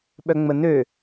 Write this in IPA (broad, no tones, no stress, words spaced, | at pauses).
ɓœŋ͡mənø